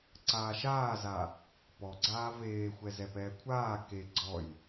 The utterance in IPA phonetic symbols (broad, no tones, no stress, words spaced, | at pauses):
ǀaːʃaːza | pɔɡ͡ǀaː veːxʷɛ zɛpɛːkʷʰaː ke ɡ͡ǀɔj